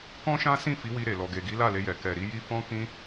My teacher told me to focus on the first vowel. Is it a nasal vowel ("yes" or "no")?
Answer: yes